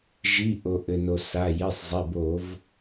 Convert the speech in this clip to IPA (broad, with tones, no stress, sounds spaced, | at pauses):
ʒ i˩˧˩ ʔ o˩ ʔ ɘ˩ n o˩ s a˩˧˩ j e˩˧˩ sˤ zˤ e˩˧˩ b o˧˩˧ v